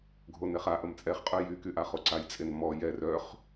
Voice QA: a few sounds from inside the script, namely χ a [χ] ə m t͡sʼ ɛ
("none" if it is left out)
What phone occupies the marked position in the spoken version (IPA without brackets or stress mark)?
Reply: ʔ